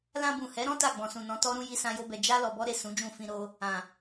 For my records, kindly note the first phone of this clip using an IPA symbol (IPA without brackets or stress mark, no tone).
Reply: l